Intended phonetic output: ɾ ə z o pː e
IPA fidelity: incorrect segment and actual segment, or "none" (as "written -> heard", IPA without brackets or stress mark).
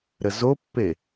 none